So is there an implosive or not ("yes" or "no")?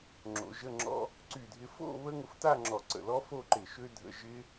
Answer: no